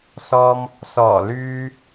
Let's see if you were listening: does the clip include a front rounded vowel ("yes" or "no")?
yes